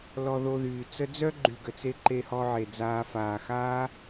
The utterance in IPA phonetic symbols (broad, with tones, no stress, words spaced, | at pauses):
lɔ˧ðo˧ðyː˨t͡sə˦ d͡zœ˦ɡ͡ǃy˨ɡə˨t͡se˧ ǃe˧hɔ˧ʕe˨d͡zaː˧ faː˨xaː˦